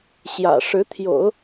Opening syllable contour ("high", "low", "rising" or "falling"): low